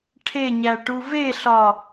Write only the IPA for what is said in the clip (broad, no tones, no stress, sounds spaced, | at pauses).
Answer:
ʈʰ e ɲ æ ʈ u v e ɬ ɒ